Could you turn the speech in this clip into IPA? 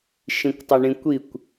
ʃ ĩ kʷ tˤ ɪ ɳ ĩ kʷ i kʷ

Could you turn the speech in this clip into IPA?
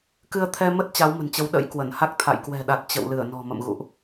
k ɨ˧ ə̯ t̪ʰ ɛ˧ m ə˦˥ t̚ t͡ɕ a˨˦ w m ə̤˨˩ n t͡ɕ ə˨˦ w ɗ ə̰˧˥ j k w ə˧˩ n h a˦˥ k̚ t̪ʰ a̰˧˨ j k w ɛ̤˨˩ ɗ a˨˩ t̚ t͡ɕ ə̰˧˨ w l ɨ˧˩ ə̯ n ɔ̤˨˩ m ə̰˧˨ m ɣ ṵ˧˨ ʔ

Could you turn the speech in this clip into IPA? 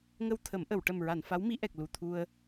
ŋ ə˧ w t̪ʰ ə˨˩˦ m ʔ ə˨˩˨ w ʈ ə˨˩ m ɹ a˨˩˨ n f a˧˥ w m i˧˥ ʔ ɛ˨˩ k̚ l u˨˩ t̪ʰ u˧ ə̯

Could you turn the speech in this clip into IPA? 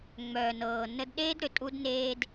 ŋ͡m œː˨ n ɤː˨ n ə˧ d ɗ eː˦ d ɾ ʏ˨ tʼ u˦ d n eː˦ d

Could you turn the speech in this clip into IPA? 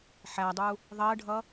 ħ æ dˤ u | ðˤ ɜ ɖʱ ʌ

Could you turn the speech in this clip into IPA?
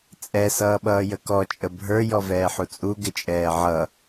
t͡sʼ ɛ s ʌː ɓ ʌː j ə k ɔ t͡ʃʼ ə bʱ ə˞ j ɔ v ɛː ħ u t͡sʼ u ɡ ɪ t͡ʃʼ ɛː ʕ ʌ

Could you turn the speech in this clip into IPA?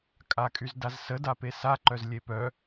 kʼ a kʼ y z d a z s ə d a p e s a ǃ œ z lʲ e p œ

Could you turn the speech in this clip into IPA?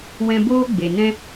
w ɛ̃˧ b oː˦ ɡ͡b e˨ n ɛ̃˦

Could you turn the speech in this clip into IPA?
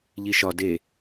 ʎ i ʃ ɒ d e

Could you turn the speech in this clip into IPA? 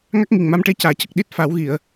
ŋ a˦˥ k̚ ŋ i˨˩ ŋ m a˧ m ʈ e˧ c aː˨˩˨ c ə˨˩ k̚ ɗ i˦˥ t̚ f a˨˩˦ w ɣ i˨˩˨ ə̯

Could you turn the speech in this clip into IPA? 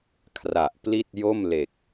kʰ r a˨˩ ʔ p l i˥˩ t̚ j o˥˩ m l e˨˩ k̚

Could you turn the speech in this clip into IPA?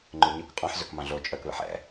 ŋ͡ǃ ʉ ɲ ʉ k qʼ ɑ̃ ħ z ø k m ɑ̃ ɮ o t͡ʃʼ œ k β ɛ̰ ħ ɛ̰

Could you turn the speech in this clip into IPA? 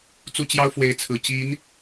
t͡s u˥˩ t͡ɕ j ɑ˥ ʊ̯ f w e˧˥ ɪ̯ t͡sʰ ɹ̩˨˩ t͡ɕ i˧˥ n

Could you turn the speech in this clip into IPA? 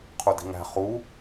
qʰ u d i̤ ŋ æ̤ χ u

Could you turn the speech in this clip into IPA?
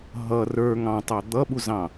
ɦ ʌ r ə˞ ŋ ɑ̃ tˤ ɑ d̪ ʌ ɓ u z ɑ̃

